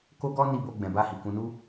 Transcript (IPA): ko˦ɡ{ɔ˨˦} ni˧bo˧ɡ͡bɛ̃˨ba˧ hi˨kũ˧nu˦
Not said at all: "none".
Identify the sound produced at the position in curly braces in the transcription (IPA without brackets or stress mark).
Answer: ɔ˦